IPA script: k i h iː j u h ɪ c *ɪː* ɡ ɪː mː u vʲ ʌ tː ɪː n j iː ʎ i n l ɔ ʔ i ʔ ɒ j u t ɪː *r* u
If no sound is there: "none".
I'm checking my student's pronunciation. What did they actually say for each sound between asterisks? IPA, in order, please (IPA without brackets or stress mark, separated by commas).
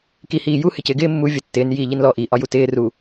ɪː, r